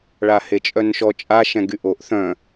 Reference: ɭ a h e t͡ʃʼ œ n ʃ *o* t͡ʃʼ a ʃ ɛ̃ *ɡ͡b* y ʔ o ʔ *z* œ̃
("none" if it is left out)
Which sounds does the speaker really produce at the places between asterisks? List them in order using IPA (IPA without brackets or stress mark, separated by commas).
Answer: ɔ, ɡ, θ